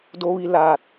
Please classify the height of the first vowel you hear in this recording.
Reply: mid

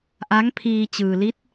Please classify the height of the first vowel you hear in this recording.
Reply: low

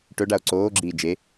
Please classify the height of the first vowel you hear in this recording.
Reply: mid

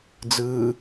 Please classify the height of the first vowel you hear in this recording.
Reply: high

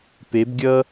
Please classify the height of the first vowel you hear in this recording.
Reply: mid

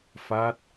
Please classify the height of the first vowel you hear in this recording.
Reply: low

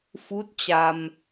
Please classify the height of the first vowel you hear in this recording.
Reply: high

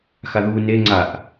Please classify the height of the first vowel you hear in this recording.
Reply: low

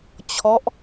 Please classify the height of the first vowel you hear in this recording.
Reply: mid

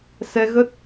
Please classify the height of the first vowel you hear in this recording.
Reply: mid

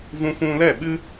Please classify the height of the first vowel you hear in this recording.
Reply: high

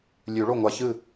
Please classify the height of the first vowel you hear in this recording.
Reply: high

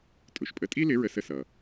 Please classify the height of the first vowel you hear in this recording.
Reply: high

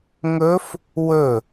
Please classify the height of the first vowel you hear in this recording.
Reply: mid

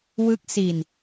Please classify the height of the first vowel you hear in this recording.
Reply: high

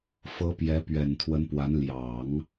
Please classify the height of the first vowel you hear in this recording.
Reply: mid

